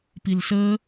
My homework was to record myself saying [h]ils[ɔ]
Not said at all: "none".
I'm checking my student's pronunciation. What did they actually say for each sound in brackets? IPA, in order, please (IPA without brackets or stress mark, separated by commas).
p, ə